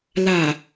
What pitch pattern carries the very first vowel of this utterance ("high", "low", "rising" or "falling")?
low